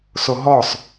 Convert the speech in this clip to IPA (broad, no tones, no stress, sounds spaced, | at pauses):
s o ɦ ɔ sˤ